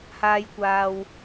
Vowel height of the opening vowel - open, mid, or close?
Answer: open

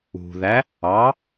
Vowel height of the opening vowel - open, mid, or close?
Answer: close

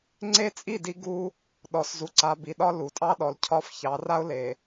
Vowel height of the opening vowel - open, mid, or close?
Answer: mid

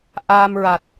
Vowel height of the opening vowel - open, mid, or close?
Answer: open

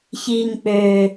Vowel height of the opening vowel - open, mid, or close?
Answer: close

